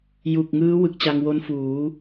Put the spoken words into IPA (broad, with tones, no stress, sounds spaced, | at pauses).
j u˨˩ k̚ ŋ ɯː˦˥ w ɯ˨˩ k̚ t͡ɕ a˧ ŋ w o˦˥ n f uː˩˦